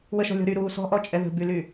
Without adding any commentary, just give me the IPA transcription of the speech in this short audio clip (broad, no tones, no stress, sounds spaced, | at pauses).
w ə ʃ ɔ̤ lʲ ɔ̤ ɾ y ɾ uː s ɔ̤ ʔ ɔ t͡ʃʼ ɛ ð ə̤ b y l yː